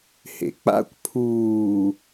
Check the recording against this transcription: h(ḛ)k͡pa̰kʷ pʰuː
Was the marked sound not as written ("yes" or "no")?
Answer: no